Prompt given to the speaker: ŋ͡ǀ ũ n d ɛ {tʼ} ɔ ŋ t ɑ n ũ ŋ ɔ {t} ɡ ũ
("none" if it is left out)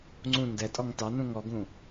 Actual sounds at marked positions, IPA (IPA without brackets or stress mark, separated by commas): tʼ, none